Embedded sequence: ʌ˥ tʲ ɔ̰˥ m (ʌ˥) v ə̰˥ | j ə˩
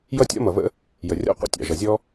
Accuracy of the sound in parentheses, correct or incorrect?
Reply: incorrect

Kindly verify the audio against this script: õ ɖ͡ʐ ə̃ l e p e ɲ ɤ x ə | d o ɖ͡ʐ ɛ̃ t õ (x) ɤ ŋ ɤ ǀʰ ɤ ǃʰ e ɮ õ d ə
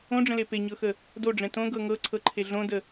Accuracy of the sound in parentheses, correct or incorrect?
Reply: incorrect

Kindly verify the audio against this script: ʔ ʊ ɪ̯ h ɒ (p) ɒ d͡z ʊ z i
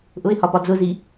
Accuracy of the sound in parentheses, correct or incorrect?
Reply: correct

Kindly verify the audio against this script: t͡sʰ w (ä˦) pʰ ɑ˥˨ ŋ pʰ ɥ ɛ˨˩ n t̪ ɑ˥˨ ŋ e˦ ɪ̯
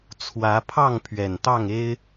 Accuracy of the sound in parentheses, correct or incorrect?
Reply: incorrect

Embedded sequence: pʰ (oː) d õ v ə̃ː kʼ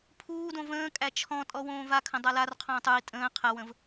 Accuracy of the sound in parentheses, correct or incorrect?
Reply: incorrect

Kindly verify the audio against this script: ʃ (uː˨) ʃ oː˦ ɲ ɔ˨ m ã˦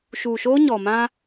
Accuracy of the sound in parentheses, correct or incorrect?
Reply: correct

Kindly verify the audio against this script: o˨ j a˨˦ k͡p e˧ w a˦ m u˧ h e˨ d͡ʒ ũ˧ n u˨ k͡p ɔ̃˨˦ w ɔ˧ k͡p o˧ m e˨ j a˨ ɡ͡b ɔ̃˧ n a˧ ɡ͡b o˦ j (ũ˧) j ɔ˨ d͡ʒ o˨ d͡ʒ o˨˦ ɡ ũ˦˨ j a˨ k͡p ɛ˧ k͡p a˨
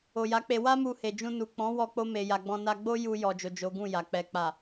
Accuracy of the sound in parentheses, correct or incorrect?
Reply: incorrect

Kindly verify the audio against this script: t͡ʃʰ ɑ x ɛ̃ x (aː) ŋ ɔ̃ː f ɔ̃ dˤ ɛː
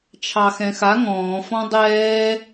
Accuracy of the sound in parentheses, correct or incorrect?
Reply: incorrect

